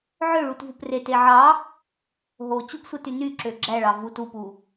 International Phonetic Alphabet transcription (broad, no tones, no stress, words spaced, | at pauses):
ʕøɭutvup rete ʕɑ | ɦo t͡ɕuɡsʷɯty nyǁø ɡ͡ǁæɭɑ vut upu